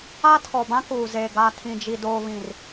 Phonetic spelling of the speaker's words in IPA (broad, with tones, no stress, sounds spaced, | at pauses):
a˦ tʰ ɔ˨ b ã˦ k uː˨ z e˨ ɡ a˨ tʰ ĩ˨ d͡ʒ i˨ d oː˨ β ĩ˨ r